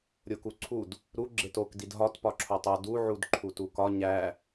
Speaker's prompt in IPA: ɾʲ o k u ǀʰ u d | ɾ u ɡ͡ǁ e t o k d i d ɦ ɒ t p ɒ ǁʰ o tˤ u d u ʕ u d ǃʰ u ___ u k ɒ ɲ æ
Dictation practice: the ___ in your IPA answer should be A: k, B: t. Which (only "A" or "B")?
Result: B